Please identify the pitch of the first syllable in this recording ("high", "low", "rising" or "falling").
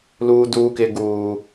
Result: high